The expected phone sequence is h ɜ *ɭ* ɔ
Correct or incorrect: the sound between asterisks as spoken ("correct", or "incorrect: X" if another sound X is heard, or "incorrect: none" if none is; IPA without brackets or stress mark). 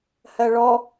correct